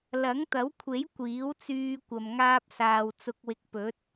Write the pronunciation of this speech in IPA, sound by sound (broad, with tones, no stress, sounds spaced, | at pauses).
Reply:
l ɐ˨˥ ŋ t̪ ɐ˨˥ w kʷʰ e˨˥ j kʷ iː˨˥ w t͡s yː˧ kʷ ɐ˨ m ŋ aː˧ p̚ s aː˨ w t͡s ʊ˧ k̚ w ɪ˧ k̚ p ɵ˨˥ t̚